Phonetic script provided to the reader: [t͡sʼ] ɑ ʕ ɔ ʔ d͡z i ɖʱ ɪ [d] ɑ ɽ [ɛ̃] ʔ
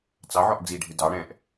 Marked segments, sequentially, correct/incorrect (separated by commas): incorrect, correct, correct